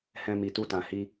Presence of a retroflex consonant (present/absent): absent